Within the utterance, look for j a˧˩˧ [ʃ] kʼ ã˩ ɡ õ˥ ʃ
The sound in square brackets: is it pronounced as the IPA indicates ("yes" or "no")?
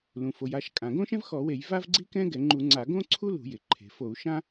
yes